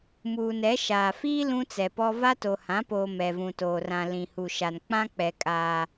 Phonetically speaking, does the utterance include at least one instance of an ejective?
yes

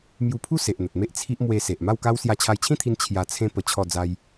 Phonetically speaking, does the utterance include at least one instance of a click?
no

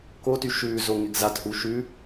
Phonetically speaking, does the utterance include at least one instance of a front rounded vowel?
yes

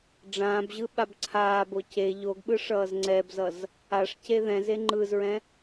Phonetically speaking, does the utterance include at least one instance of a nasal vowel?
yes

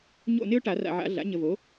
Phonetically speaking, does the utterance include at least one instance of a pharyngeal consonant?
yes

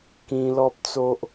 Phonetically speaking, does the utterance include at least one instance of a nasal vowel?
yes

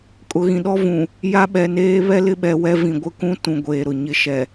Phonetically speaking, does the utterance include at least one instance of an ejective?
yes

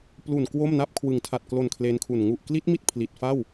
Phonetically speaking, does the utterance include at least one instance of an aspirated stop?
yes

